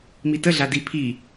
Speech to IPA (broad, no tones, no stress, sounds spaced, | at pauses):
m i t ə ɮ a d i pʰ i